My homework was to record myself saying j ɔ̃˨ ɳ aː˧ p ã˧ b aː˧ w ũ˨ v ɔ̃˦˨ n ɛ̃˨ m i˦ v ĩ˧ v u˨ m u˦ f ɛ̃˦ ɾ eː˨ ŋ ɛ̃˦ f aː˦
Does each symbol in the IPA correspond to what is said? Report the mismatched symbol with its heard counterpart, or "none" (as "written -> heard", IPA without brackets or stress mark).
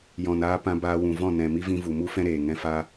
ɳ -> n